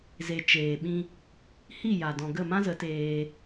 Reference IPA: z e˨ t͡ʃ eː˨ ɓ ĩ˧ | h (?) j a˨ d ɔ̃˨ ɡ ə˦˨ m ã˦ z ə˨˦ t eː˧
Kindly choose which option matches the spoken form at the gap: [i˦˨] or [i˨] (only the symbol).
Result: i˦˨